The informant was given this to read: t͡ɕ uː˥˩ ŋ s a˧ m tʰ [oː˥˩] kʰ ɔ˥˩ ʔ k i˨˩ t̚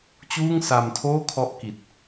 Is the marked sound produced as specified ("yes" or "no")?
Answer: yes